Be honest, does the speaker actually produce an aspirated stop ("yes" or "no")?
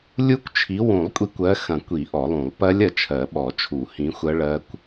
yes